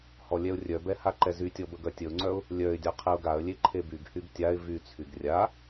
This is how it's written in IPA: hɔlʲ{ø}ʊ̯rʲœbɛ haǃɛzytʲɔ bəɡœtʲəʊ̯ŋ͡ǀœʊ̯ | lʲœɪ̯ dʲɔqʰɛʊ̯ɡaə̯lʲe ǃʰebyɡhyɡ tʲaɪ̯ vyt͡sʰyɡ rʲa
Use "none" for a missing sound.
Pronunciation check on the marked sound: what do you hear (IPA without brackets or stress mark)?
ɛ